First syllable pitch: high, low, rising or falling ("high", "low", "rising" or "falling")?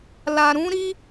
low